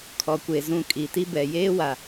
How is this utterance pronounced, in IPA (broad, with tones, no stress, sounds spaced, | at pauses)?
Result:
kʰ ɔ˨ kʷ e˨ z ũ˨ kʼ i˨ t i˦ b ɛ˨ j eː˦ w a˨